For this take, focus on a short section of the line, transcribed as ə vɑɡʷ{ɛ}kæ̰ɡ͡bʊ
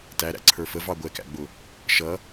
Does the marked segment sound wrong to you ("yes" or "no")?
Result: no